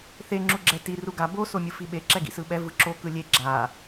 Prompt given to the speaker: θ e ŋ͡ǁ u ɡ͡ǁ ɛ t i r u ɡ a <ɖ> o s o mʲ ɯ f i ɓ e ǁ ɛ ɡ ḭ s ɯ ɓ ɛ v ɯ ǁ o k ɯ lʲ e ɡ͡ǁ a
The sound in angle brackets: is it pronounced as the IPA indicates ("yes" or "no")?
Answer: no